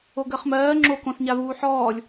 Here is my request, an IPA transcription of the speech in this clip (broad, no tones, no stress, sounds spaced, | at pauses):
o ɡ ɜ χ m ɜː ŋ͡ǁ o k õ s ɲ a v uː ħ ɔː lʲ